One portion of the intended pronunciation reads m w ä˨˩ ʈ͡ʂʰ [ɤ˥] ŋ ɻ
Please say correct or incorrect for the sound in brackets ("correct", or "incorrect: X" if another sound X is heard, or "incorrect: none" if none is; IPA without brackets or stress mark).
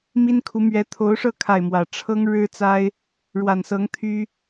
correct